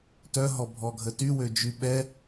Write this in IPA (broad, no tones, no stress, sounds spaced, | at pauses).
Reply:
t œ ɦ ɔ bʱ ɔ ɡʱ ə t y w ø d͡ʒ y ɓ ɛ